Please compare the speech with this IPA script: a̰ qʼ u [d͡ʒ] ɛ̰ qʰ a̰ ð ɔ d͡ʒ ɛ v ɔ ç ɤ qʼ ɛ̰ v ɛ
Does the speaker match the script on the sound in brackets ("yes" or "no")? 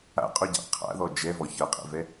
no